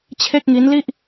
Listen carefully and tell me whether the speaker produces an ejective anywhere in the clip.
no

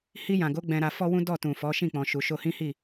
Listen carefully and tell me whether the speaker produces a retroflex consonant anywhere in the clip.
no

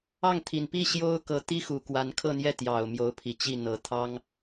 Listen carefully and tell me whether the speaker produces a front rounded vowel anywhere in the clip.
no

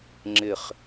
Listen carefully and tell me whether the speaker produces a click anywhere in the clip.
yes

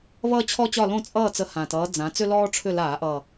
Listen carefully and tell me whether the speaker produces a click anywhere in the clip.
no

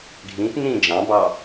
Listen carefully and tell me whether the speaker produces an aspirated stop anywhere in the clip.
no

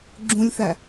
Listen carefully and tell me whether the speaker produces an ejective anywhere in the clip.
no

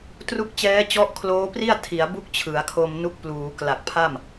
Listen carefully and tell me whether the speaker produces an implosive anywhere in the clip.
no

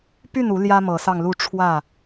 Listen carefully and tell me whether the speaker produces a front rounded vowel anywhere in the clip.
yes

